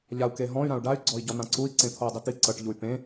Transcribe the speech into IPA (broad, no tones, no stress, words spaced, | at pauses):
ʎau̯keɦɔ̃y̯ ɾãu̯ɖay̯ ɡ͡ǀɔi̯ɟɔn̪ãǀui̯ ǀẽt̪ʰoy̯dˤit̪i ǀɤʈ ʎuy̯pẽ